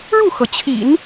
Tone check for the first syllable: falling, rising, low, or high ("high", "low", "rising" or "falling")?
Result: falling